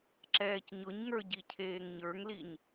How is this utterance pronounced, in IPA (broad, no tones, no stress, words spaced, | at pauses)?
ǁɛːcɲʊɲŋə˞ ɟicʰeːŋɲə˞ŋliɲ